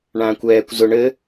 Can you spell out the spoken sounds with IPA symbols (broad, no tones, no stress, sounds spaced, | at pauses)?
ɳ ãː kʷ ɛː kʷ z ʊ ɳ ɘ